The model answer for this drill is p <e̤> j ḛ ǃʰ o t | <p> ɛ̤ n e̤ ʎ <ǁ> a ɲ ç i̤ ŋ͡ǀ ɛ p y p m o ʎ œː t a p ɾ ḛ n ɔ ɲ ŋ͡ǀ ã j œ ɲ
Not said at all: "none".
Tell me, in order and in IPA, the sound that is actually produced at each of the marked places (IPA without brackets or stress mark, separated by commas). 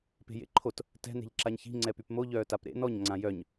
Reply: e̤, t, ǁ